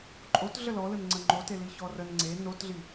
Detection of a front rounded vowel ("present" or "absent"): absent